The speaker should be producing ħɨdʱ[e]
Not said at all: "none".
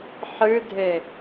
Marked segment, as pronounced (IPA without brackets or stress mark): e